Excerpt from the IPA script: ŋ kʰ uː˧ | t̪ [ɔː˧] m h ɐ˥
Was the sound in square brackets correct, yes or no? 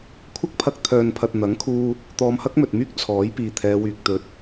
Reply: yes